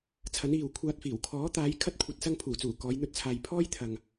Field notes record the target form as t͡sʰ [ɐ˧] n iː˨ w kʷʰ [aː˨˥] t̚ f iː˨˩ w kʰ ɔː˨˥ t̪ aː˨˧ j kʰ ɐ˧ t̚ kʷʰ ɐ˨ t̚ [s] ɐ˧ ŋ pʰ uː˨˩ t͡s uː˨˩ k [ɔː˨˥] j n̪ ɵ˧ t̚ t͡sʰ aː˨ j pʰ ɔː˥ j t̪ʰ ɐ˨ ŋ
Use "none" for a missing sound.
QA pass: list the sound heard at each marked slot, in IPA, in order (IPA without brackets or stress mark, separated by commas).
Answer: ɐ˨˥, aː˧, s, ɔː˨˧